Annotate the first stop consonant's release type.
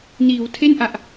aspirated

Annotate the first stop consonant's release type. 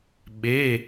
implosive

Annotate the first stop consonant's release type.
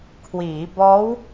aspirated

